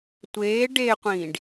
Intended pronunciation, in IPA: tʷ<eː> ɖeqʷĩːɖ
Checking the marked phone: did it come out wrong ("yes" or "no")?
no